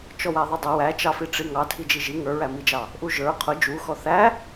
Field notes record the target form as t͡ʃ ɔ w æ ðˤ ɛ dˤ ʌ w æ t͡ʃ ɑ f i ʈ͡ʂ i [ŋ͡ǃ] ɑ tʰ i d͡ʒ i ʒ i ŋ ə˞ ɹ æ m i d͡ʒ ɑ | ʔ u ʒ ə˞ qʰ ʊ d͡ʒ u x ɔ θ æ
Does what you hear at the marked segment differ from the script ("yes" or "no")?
yes